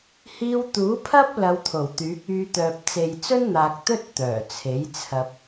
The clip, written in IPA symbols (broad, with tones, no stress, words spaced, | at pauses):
hiː˧wt̪uː˨˥pʰɐ˥p̚ lɐ˧wt̪ʰo˨˩wt̪yː˨˥k̚ yː˧t̪œː˨p̚ t͡se˨jt͡sɵ˥nn̪aː˨k̚ t̪ɵ˥t̚ t̪œː˨˩t͡sʰe˨˥jt͡sʰɐ˧p̚